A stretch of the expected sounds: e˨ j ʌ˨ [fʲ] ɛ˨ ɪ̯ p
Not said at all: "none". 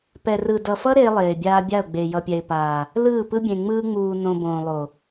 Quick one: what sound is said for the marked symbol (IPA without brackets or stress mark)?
pʲ